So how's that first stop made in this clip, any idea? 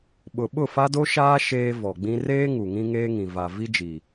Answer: implosive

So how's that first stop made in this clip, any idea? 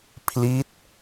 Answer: aspirated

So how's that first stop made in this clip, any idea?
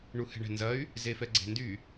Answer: click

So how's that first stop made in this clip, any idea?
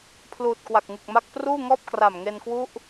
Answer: aspirated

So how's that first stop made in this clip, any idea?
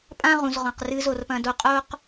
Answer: ejective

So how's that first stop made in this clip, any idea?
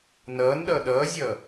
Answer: implosive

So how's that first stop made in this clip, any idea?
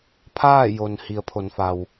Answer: aspirated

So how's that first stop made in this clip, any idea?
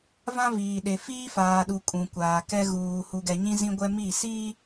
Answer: implosive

